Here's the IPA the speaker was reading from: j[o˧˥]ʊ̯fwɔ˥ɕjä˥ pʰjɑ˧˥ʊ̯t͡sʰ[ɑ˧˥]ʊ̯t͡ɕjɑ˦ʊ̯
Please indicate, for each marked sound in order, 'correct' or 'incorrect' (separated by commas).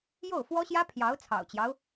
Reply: incorrect, incorrect